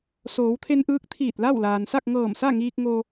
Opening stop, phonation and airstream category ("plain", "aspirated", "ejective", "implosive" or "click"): aspirated